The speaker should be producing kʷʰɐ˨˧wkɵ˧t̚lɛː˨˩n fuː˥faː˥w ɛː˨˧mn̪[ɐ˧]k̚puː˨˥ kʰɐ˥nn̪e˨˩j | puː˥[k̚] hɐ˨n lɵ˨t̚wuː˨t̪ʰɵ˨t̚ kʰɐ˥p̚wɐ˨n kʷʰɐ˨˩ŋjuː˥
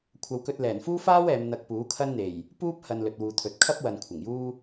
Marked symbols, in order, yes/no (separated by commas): yes, no